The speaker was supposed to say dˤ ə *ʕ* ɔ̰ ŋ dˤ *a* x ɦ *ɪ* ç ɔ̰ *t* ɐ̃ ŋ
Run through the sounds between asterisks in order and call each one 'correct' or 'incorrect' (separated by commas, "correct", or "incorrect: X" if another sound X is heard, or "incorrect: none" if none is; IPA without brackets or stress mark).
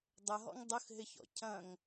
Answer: incorrect: ɦ, incorrect: ə, correct, incorrect: cʰ